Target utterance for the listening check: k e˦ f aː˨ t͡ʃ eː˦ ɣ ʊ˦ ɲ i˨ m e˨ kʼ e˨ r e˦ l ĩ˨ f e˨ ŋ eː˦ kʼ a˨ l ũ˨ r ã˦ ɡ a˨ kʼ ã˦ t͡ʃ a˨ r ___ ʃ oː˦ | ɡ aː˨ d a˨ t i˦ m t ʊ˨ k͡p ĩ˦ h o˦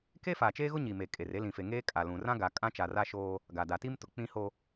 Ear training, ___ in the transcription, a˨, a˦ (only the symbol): a˦